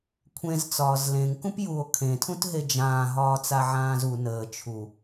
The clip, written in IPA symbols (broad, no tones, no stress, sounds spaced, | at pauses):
kʷʰ ẽ z t͡s ɒː z l ẽ ŋ k ũ p j u o̯ kʰ ẽ tʰ ũ t ɦ e d͡ʒ ãː ɦ ɒː t͡s a ʕ ãː z u n əː t͡ʃʰ u